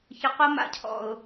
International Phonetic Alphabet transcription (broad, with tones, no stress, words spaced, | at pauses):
çə˨qo˦ ma̰˨cʰɔ̰˨ʊ̯